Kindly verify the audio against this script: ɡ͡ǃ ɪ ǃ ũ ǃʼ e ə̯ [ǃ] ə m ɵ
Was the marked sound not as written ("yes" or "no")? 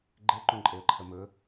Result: yes